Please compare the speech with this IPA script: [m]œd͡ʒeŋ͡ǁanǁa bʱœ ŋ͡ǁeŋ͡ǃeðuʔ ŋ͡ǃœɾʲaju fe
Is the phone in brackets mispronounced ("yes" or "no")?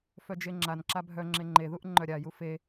yes